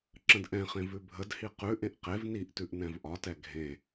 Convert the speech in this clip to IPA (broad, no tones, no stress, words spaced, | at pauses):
ǁə̃dʔɛ̃χẽ vʉbʱədhi qʉʔẽʔ qev niʔtʉʔ nɛ̃vʔɒtɛ ɡʱẽ